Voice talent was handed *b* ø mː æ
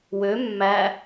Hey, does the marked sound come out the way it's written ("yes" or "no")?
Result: no